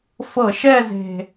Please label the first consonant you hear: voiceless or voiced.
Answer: voiceless